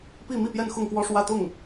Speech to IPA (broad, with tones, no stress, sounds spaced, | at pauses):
p i˥˧ m i˥˧ p j ɛ˥˧ n x ʊ˥˩ ŋ k w ɔ˥ ʂ w ä˥˧ t̪ ʊ˥˩ ŋ